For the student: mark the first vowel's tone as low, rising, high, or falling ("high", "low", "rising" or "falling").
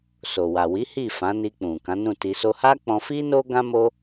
low